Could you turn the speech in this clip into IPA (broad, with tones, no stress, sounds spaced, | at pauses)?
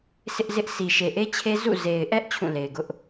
sʰ ɪ˦ ʔ z ɪ˦ ʔ s i˨ ʃ e˨ ʔ e˦ t͡ɕʰ e˦ z ṵ˦˨ z e˨ ɪ̯ ʔ ɛ˦ ʔ t͡ɕʰ ũ˦˨ l e˨ ɪ̯ ɡ ʊ˦ ʔ